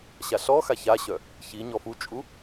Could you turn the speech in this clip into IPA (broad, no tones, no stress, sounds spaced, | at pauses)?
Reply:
ɕ a ɬ ɔ x a ç a ɕ œ | ç i ɲ ɔ f u t͡ʃʼ u